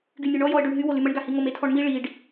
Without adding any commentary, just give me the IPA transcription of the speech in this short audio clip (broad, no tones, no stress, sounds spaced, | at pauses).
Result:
ɡ y nʲ ø ɳ ɔ j ɔ ə̯ ɖ ø ɳ ɦ y w o l y m ə ɳ ɡ a h i ŋ o m e tʰ ɔ ɳ m i ɭ i ɖ